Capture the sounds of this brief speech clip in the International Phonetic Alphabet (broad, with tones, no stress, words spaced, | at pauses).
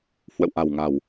hwə̰˧˨wʔa̤˨˩wŋa̤˨˩w